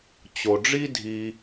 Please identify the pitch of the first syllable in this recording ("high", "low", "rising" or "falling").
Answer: low